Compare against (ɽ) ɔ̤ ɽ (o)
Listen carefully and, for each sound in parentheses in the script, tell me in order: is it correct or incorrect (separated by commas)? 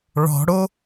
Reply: incorrect, correct